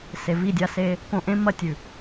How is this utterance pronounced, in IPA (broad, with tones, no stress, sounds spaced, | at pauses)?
s e˨ v i˦˨ dʲ a˦ s e˦ | k õ˨ ʔ ẽ˦ m ɐ˦˨ tʲ ʉ˨